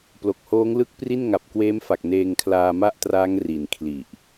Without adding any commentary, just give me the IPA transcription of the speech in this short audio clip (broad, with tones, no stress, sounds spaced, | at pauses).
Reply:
p l o˨˩ k̚ h oː˦˥ ŋ l ɯ˦˥ k̚ p r i˥˩ n ŋ a˨˩ p̚ k w eː˦˥ m f a˨˩ k̚ n eː˧ ŋ kʰ l aː˧ m a˥˩ ʔ t r aː˦˥ ŋ r i˨˩ n kʰ l i˨˩ ʔ